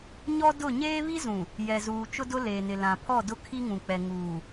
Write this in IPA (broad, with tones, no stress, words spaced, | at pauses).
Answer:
ɲɔ˦dʊ˦˨ ɲeː˦βi˦zũ˨ | jɛ˨zuː˨ t͡ʃʊ˦dʊ˦leː˨nɪ˨ lã˨pʰɔ˦˨dʊ˦ kʰi˦ŋũ˨k͡pɛ˨ ŋuː˨